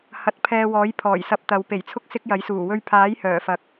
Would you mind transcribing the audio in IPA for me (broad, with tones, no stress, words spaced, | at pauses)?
hɐ˨˥t̚pʰɛː˧wɔː˨˥j pʰɔː˨˩jsɐ˧p̚ t̪ɐ˨˧w pe˨˩jt͡sʰʊ˥k̚ sɪ˥k̚jɐ˨˥jsuː˨˩ wɵ˧ɥpʰaː˨˥j hœː˨˩ fɐ˨k̚